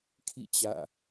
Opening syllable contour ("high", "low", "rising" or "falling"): falling